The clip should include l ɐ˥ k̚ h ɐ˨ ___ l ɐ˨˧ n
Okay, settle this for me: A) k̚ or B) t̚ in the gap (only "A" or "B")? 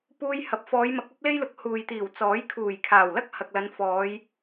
A